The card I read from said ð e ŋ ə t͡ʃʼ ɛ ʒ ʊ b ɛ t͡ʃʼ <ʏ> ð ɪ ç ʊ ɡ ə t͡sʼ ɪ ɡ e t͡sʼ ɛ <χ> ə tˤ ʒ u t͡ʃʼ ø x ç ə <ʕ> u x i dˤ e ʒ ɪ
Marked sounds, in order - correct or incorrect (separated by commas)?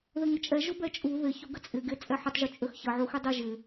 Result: incorrect, incorrect, correct